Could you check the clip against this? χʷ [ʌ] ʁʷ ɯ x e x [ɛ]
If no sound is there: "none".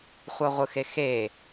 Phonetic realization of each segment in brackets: ʌ, e

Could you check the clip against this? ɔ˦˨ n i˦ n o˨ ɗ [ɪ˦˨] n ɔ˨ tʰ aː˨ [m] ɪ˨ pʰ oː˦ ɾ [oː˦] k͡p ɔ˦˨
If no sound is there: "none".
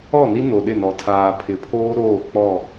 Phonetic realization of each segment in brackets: ɪ˦˨, pʰ, oː˦˨

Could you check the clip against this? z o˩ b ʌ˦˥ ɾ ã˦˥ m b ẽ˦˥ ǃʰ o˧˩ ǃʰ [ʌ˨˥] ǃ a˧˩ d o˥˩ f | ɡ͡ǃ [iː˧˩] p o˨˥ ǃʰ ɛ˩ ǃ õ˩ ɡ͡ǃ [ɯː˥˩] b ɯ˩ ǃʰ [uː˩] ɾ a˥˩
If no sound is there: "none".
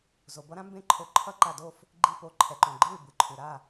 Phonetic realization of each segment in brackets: ʌ˦˥, i˧˩, ɯː˥˩, u˩

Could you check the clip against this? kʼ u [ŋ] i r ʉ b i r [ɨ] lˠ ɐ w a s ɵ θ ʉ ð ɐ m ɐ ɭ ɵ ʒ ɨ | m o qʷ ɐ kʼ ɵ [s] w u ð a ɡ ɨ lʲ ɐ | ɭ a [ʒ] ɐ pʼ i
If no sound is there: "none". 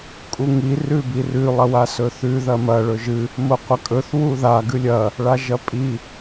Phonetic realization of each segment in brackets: ŋ, ʉ, θ, ʒ

